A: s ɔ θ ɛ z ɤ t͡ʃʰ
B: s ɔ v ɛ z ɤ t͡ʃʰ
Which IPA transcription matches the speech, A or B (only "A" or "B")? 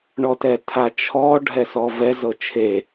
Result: B